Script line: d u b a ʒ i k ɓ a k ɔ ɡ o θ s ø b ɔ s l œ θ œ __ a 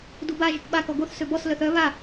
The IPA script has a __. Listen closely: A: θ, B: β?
B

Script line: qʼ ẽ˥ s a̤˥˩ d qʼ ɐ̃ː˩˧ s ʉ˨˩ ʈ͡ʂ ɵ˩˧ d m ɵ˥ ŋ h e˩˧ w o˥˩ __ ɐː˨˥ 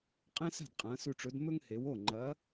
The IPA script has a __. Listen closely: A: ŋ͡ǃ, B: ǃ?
A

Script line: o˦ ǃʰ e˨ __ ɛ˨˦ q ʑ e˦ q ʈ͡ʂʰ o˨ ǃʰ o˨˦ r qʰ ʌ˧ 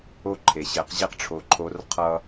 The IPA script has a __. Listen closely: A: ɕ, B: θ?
A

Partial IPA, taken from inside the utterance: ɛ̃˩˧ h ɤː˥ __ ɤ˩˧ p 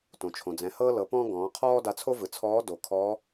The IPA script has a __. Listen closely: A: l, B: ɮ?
A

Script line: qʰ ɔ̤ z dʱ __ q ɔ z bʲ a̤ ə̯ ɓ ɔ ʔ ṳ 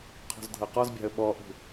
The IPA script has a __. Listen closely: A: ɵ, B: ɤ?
B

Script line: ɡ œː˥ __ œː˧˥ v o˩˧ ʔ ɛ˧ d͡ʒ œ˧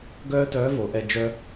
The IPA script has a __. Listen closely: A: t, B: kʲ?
A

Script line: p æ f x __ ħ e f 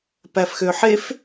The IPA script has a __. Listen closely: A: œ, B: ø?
B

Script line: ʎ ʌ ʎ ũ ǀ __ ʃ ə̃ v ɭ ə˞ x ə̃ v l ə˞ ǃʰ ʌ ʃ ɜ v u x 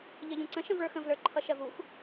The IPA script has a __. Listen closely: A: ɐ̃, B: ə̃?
B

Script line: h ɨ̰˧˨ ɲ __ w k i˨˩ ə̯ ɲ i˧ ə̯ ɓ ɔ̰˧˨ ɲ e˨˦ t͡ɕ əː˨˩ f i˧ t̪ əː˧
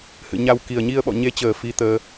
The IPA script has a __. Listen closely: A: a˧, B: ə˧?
A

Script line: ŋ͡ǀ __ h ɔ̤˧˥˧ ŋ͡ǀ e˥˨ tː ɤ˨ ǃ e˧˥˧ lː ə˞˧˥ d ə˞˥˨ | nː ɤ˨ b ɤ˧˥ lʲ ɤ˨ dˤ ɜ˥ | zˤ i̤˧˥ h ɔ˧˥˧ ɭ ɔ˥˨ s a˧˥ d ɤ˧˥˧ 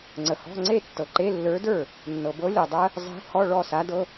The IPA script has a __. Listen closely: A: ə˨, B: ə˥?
A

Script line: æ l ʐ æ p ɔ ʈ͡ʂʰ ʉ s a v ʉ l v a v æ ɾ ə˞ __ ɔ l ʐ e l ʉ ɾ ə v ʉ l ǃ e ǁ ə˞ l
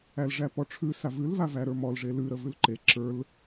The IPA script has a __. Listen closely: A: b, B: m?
B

